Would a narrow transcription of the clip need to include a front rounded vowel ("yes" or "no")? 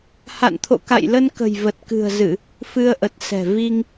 no